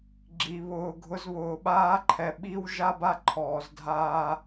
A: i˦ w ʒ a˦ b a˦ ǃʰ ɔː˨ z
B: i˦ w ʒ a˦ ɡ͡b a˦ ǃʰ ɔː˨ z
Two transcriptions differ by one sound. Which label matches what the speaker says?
A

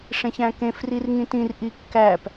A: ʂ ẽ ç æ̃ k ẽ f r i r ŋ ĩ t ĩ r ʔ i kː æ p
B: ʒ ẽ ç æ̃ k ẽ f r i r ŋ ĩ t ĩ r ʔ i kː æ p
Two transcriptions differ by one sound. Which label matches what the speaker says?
A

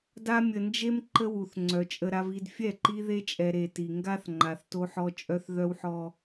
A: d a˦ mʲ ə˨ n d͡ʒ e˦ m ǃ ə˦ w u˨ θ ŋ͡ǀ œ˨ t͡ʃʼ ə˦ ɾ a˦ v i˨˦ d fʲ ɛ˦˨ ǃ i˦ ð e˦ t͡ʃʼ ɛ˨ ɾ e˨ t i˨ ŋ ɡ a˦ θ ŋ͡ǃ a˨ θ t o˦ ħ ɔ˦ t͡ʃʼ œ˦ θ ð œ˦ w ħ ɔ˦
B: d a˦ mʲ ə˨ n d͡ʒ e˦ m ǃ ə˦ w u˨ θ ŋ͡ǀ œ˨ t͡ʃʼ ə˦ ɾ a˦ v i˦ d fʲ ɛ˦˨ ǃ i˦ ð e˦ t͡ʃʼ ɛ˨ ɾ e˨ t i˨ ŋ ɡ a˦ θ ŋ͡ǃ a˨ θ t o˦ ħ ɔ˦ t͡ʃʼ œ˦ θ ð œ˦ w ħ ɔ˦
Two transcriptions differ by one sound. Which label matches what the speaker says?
B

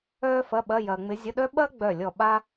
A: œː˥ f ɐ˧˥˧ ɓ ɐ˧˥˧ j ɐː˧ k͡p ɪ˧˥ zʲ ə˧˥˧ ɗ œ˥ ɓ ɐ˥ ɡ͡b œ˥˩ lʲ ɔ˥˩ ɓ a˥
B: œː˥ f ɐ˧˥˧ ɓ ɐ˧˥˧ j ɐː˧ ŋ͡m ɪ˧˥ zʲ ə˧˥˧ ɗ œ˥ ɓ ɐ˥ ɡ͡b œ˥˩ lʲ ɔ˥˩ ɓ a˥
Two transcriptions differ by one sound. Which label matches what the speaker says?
B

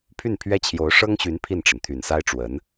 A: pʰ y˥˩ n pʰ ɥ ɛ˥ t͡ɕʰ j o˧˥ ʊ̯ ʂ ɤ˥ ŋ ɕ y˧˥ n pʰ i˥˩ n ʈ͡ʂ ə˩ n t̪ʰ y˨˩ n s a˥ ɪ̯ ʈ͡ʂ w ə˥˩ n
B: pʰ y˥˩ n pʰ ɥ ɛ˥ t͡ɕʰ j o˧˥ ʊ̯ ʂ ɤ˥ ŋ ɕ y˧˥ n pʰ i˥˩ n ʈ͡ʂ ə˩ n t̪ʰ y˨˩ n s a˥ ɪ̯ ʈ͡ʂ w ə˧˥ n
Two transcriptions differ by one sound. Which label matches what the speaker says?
B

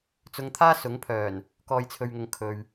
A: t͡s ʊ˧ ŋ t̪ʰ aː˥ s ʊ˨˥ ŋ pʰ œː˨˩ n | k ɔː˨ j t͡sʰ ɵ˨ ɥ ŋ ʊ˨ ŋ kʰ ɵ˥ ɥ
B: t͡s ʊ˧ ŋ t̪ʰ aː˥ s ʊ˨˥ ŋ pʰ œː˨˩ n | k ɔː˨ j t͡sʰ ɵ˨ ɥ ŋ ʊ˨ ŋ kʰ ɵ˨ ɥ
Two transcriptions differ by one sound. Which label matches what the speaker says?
B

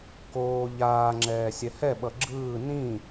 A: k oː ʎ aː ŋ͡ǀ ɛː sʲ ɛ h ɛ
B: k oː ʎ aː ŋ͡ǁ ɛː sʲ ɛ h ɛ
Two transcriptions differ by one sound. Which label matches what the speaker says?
B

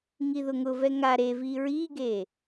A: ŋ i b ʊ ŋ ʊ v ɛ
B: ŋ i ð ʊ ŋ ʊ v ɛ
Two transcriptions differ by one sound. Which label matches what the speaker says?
B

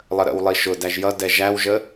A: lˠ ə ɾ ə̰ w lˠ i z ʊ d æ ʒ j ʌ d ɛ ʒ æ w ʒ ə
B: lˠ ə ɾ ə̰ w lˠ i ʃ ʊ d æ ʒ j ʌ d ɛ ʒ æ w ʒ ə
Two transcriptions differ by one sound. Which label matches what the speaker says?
B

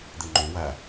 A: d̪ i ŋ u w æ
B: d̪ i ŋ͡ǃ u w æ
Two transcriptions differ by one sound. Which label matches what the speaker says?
B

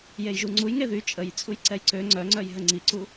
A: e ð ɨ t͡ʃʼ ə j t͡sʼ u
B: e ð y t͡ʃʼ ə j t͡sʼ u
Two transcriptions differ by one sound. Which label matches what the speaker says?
B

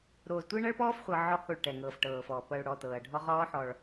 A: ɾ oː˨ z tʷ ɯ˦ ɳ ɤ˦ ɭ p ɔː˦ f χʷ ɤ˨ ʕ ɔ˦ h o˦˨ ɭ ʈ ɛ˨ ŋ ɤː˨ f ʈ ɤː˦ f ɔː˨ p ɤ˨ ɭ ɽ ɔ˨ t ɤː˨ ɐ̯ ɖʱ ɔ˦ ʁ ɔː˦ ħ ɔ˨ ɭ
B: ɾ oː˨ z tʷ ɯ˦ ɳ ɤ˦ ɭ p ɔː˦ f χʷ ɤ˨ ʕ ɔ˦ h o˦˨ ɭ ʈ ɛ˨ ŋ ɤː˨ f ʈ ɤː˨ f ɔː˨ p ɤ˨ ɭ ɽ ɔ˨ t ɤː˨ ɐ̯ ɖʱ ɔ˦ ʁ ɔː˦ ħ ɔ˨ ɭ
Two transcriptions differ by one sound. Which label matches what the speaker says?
B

